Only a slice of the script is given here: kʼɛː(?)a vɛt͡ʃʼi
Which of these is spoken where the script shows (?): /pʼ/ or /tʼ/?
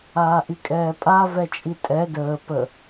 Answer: pʼ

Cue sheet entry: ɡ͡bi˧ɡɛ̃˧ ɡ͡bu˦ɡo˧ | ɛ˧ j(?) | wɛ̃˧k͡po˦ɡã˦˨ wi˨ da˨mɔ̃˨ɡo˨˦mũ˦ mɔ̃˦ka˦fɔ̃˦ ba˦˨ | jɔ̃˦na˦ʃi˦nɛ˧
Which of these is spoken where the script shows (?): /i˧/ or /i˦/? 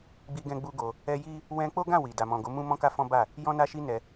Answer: i˦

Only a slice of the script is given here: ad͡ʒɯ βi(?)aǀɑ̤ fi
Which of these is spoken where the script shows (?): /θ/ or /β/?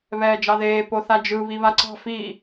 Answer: β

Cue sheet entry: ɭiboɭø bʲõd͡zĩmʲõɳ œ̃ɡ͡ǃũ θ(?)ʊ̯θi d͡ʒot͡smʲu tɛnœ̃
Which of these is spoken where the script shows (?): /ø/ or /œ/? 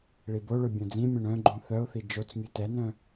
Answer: œ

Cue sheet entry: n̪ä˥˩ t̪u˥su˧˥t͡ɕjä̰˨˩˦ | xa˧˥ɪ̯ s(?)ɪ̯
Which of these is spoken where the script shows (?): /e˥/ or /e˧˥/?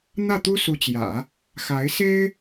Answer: e˥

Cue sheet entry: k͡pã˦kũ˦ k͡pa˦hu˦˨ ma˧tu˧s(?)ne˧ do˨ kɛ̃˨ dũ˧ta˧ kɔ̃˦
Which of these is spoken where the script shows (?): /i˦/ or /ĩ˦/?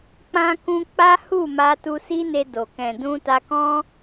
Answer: i˦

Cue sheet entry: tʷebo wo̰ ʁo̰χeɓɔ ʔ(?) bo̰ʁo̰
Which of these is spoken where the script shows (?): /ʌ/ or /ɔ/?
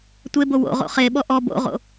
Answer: ɔ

